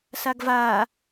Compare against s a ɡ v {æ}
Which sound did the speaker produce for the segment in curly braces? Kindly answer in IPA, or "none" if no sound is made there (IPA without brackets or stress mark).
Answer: a